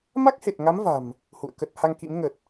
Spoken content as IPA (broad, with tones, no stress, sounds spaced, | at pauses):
m a˦˥ k̚ h e˨˩ t̚ ŋ a˨˦ m v a̤˨˩ m | h ṵ˧˨ ə̯ k ə˦˥ t̚ h a˧ ŋ k ḭ˧˥ m ŋ ə˨˩ t̚